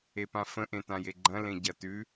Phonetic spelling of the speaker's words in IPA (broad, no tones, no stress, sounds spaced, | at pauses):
e p ã f ə̃ ʔ ẽ t ã j e ɡ͡ǃ ɐ̃ l ẽ ɟ ɐ t ʉ